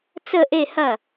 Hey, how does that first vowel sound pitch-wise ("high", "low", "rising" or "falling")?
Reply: falling